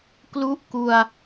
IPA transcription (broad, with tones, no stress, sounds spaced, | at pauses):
k l u˥˩ ʔ k u˧ a̯